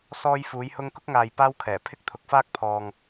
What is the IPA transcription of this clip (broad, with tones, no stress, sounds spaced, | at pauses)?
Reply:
s ɔː˥ j f uː˨˥ j h ʊ˥ ŋ k ʊ˥ k̚ ŋ aː˨ j p aː˥ w kʰ ɛː˨˩ pʰ ɪ˥ k̚ t̪ʰ ʊ˨˥ k̚ f aː˥ k̚ pʰ ɔː˨ ŋ